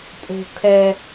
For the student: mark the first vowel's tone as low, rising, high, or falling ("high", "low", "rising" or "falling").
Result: low